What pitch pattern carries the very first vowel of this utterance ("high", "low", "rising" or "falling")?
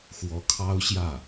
rising